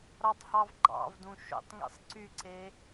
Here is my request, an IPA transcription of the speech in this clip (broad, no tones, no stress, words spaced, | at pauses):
ɾɑtˤhɑvɡ͡ǃɑ̰vdũ ʃo̰tˤŋḭsˤ ǀyǀe